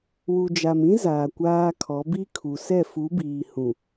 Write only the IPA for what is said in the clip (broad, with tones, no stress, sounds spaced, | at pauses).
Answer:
w u˨ d͡ʒ a˨ m ĩ˦ z aː˨ kʷ aː˦ kʰ ɔ˨˦ b i˦ kʰ u˨ s ɛ˦˨ f u˨˦ b iː˨ h ũ˨